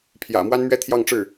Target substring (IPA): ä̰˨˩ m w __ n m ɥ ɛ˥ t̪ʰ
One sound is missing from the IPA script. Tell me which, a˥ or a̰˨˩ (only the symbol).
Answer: a˥